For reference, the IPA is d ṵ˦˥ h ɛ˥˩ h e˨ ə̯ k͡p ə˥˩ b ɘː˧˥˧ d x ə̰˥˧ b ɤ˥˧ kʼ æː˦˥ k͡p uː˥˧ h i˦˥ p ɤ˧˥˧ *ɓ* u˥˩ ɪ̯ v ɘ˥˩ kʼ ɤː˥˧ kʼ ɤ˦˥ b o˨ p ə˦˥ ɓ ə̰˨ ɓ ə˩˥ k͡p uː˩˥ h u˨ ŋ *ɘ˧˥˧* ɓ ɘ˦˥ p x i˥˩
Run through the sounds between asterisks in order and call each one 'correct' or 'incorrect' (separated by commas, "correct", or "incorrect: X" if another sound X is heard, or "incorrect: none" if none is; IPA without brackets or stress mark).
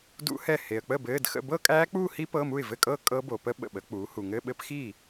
incorrect: m, correct